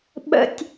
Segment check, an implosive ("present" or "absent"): present